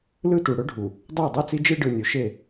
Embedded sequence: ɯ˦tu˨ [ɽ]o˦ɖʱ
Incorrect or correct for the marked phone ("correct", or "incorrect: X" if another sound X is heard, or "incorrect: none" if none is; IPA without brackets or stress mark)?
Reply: correct